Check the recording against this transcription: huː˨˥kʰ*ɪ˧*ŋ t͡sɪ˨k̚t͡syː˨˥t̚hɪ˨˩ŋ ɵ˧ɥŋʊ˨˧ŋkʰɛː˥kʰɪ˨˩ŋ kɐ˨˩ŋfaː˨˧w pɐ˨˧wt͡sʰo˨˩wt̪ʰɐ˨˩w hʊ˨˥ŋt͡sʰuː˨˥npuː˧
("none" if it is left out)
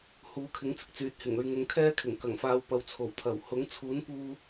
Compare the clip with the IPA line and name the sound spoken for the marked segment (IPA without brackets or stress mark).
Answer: ɪ˨˥